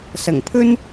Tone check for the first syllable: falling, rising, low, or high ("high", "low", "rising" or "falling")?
low